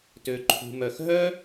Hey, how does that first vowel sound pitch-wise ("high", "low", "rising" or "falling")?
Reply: low